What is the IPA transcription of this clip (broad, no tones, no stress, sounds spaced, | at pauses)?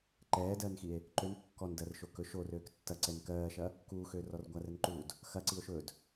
ǃ ɛː d ɜː n x i e̯ | ǃ ø n kː ɔ n d ɜ r ʃ o k ɵ ʃ o r øː k tː ɐ ǀ ɛ n k ɜː ʃ ɐ | k uː x øː r ɔ r ɡʷ a r ɛ n ǃ uː d | x ɐ ǀ i o̯ ʃ ɵ d